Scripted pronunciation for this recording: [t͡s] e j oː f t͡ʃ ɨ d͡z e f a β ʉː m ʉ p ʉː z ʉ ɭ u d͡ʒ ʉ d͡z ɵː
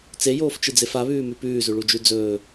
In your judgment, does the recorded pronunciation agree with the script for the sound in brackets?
yes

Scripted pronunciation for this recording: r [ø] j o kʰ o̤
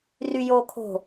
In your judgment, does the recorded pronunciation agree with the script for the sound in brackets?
no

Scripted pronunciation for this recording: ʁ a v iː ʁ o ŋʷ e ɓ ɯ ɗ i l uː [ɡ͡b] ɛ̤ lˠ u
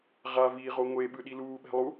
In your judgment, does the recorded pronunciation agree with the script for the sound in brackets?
no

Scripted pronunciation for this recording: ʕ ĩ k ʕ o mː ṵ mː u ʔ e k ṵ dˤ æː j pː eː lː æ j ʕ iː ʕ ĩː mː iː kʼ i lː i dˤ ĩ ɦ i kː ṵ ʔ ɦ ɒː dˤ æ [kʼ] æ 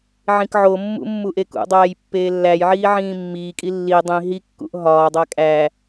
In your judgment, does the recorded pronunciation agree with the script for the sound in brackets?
yes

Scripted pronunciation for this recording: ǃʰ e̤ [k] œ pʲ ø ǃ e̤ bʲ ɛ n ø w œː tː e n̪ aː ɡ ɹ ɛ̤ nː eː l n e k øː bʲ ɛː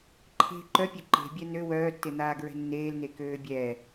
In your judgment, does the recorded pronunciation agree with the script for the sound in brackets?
no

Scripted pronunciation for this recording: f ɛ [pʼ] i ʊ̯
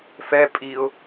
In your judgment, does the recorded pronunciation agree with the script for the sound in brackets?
yes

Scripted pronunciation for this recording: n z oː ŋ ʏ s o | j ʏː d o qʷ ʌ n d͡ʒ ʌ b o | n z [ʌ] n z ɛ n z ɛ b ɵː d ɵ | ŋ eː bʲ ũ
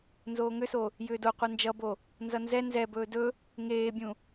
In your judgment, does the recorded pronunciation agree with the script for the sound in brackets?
yes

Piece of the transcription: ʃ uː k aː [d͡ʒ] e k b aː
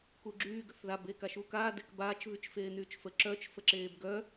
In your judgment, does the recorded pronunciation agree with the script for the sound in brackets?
no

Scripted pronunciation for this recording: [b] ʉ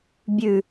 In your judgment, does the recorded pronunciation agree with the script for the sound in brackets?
no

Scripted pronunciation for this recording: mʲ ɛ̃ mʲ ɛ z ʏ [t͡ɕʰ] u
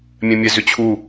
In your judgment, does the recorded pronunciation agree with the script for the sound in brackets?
yes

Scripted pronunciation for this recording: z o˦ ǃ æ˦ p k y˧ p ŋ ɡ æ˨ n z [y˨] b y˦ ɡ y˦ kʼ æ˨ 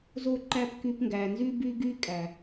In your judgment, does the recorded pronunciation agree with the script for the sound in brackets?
no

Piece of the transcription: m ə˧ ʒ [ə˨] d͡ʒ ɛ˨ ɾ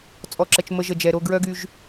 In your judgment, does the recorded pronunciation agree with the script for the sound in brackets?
yes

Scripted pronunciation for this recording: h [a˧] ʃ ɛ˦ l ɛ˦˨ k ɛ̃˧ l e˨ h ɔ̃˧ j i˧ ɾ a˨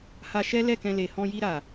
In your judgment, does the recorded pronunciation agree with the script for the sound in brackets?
yes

